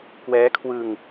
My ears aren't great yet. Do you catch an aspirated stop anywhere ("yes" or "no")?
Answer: yes